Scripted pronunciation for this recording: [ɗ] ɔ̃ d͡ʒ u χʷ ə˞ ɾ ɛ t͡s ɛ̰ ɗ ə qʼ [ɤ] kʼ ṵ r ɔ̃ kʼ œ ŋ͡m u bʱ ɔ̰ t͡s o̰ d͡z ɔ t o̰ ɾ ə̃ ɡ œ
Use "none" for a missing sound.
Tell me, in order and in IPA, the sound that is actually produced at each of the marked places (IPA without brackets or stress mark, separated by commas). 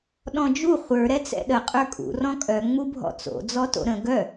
ɗ, ə˞